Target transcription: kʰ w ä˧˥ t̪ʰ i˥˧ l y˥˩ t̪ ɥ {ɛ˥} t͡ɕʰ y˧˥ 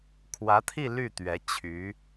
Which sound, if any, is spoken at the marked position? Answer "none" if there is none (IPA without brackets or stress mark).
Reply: ɛ˧˥